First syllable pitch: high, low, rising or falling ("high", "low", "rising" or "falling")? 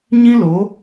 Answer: high